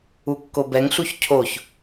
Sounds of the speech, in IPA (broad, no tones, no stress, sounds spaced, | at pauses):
u kː o b ɛ ŋ ɬ u ç cʰ o ç